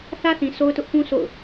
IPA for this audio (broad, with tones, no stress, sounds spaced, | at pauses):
θ ä˦ θ ĩ˨ sʰ o˦ ʊ̯ t ʊ˦ ʔ p ũ˦ sʰ o̰˦˨ ʊ̯